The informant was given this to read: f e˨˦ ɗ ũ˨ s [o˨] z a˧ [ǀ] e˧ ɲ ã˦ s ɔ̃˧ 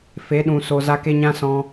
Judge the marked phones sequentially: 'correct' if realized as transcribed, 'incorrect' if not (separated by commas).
correct, incorrect